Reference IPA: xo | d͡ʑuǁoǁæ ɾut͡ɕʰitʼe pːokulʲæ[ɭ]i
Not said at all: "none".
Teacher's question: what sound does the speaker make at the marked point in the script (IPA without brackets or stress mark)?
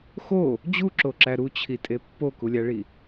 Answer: ɭ